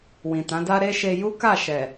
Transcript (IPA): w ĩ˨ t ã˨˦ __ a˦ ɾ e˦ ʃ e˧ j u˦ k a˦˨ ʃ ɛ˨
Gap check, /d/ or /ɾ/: d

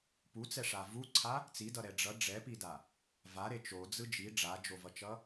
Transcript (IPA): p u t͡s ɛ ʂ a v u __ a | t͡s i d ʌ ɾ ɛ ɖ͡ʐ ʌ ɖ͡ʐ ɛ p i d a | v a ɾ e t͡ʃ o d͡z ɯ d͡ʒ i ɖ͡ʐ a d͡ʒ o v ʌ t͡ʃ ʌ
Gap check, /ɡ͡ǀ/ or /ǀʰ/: ǀʰ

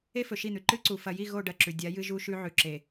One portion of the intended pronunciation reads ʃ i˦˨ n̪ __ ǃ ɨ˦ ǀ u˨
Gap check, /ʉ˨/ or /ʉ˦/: ʉ˨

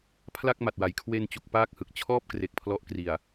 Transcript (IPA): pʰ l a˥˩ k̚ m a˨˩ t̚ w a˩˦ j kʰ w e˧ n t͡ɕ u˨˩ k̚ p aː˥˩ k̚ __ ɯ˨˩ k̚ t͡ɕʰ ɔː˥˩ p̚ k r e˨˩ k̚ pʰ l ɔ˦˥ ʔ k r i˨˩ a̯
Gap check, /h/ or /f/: h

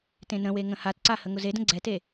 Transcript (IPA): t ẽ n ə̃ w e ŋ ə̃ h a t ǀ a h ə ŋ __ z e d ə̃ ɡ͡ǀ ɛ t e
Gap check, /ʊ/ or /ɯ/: ʊ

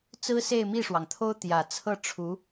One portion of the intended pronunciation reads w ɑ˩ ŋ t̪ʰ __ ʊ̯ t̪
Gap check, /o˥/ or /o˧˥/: o˥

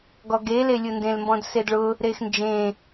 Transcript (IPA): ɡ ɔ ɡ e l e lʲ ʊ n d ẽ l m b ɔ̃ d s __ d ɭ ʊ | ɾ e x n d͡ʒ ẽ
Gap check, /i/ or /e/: e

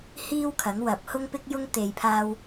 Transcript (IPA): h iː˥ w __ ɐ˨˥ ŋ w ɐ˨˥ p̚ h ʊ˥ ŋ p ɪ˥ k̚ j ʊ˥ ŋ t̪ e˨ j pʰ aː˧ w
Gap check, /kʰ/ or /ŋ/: kʰ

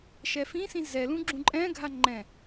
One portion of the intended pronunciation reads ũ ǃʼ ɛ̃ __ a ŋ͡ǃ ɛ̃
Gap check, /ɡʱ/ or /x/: ɡʱ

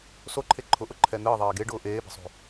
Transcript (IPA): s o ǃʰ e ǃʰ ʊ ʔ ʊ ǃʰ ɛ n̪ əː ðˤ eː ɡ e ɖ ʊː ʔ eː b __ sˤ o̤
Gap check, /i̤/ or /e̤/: e̤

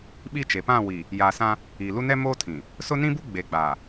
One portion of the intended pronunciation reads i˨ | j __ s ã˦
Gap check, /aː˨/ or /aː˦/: aː˨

